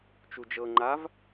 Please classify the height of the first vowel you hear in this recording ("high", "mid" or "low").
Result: high